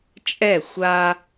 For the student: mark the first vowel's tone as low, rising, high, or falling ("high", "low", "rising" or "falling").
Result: falling